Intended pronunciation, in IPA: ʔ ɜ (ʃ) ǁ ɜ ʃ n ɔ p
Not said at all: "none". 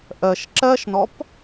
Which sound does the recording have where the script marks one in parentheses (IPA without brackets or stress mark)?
ʃ